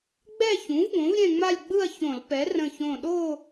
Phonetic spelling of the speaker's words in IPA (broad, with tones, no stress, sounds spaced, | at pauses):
ɡ͡b ɛ˥˧ ç ũ˩˥ v ɡ õ˩˥ v ɾʲ ɛ̃˥˧ ŋ͡m a˥˧ lʲ ɡ͡b ɯ˥˧ ɐ̯ ç õ˧˩˧ l p ɛ˩˥ r ə̃˧˩ ç õ˧˩ ɗ o˥˧